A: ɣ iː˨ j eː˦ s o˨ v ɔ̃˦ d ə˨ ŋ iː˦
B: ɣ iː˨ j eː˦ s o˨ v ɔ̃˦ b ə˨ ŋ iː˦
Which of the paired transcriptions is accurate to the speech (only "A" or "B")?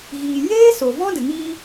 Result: A